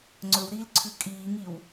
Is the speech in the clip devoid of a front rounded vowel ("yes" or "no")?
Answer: yes